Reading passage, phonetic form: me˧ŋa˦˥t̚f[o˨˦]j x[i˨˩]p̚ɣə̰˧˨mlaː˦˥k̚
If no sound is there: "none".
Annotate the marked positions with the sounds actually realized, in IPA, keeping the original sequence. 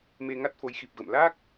o˨˦, i˨˩

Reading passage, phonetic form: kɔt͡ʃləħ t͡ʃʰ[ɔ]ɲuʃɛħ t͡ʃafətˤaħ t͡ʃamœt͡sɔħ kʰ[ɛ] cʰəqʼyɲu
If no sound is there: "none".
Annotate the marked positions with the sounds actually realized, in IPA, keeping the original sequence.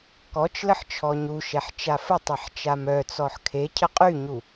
ɔ, e

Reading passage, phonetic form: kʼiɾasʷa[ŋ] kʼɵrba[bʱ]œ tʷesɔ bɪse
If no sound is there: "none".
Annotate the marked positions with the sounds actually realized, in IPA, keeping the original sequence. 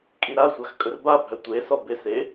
x, bʱ

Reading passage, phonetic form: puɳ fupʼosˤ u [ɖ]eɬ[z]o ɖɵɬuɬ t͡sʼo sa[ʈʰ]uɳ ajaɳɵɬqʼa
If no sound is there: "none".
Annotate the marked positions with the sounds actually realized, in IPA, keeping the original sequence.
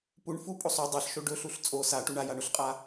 dˤ, ʃ, ʈ

